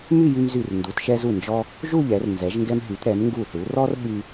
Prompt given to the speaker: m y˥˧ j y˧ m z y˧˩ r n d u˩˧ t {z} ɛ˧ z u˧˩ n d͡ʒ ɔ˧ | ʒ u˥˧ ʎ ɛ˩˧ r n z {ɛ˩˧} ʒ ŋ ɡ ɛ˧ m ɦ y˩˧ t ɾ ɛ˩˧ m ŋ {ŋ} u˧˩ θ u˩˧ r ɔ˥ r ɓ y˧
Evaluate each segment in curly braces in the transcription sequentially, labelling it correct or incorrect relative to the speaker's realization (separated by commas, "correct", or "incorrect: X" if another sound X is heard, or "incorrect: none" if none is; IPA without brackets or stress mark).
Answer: incorrect: ʃ, correct, incorrect: ɡ